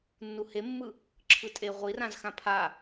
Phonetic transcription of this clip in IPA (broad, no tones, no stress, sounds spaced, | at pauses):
nː u h e mː ɯ | ǁʰ ɯ tʼ e ʁʷ i r ã z x ã pʰ a